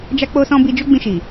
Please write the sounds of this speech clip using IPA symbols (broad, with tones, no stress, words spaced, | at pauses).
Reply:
d͡ʒa˦k͡po˦sɔ̃˦ bi˧d͡ʒo˦ɡ͡bĩ˧ʃi˨